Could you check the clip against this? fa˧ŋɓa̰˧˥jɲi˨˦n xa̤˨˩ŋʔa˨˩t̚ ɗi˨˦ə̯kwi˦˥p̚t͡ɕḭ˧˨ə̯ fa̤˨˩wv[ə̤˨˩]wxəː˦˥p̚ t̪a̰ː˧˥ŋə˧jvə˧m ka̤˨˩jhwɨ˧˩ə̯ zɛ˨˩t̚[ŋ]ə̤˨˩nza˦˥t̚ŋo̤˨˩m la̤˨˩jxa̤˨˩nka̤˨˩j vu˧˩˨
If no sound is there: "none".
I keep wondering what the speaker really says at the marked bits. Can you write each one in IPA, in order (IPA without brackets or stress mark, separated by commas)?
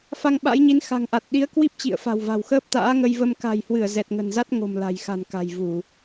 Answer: a̤˨˩, ŋ